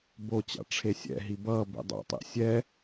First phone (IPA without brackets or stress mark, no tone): b